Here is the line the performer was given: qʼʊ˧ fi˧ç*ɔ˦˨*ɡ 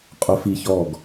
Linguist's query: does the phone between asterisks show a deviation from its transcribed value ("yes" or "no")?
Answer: no